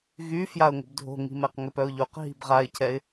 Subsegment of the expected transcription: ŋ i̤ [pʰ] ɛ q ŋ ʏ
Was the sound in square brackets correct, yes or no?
no